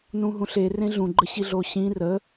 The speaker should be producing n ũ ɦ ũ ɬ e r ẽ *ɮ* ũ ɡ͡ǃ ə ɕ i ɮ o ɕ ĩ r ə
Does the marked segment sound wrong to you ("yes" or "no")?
no